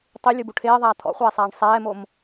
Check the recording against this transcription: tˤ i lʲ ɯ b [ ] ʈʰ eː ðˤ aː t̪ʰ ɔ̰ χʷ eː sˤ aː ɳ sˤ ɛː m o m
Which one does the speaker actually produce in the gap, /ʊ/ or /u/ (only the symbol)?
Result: u